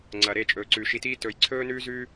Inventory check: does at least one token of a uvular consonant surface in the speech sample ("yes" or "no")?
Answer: no